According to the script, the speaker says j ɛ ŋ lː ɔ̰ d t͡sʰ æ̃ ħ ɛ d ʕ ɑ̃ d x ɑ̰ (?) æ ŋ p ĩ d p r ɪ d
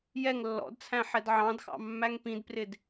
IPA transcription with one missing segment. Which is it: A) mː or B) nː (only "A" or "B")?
A